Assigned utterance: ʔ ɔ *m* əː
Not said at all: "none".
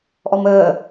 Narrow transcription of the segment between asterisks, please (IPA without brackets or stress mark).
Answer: m